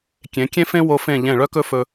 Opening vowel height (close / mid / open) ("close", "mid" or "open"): mid